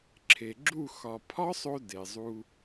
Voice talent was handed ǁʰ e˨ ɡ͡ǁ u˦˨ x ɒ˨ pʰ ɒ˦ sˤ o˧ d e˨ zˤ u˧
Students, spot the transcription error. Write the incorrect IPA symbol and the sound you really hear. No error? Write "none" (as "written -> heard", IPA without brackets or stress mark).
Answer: none